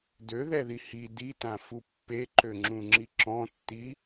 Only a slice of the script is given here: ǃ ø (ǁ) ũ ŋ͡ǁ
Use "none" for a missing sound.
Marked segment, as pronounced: ŋ͡ǁ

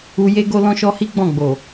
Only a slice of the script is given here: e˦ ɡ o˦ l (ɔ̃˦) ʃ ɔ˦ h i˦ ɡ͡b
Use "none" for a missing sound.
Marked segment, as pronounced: ɔ̃˦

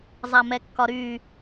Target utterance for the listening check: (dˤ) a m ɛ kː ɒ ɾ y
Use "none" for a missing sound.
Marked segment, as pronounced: zˤ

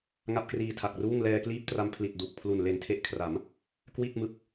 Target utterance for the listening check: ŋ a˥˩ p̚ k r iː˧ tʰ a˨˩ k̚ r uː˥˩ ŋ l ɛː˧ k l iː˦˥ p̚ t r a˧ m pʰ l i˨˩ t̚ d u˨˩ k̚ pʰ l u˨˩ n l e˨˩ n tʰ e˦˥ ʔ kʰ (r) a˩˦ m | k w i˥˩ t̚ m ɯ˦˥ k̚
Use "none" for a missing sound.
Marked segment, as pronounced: r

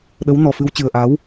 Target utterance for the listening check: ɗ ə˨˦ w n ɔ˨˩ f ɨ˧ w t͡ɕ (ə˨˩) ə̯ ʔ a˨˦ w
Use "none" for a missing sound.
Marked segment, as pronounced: ɨ˨˩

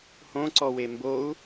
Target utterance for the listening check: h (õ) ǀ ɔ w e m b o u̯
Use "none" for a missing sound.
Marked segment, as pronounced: õ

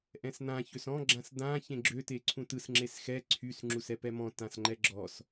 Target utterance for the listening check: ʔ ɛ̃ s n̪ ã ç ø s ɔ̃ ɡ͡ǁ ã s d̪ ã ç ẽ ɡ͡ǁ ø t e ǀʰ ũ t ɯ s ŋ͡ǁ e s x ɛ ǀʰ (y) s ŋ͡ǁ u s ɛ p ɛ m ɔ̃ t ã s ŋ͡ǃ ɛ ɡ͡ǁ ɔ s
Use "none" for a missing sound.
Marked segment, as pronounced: y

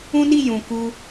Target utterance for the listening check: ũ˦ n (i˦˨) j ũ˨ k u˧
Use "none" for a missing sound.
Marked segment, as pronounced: i˦˨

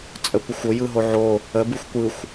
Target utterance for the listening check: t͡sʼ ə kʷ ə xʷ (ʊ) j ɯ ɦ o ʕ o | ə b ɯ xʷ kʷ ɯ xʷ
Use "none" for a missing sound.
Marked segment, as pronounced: ʊ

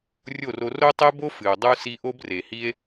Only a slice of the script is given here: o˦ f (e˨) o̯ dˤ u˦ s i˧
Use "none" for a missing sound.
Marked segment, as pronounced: ɨ˨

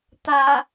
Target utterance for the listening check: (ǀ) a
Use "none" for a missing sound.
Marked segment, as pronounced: t̪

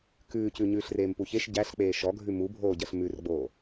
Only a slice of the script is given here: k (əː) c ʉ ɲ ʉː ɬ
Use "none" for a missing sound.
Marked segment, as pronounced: ʉː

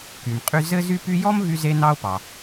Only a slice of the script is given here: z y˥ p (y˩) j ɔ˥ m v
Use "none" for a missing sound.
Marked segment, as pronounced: y˥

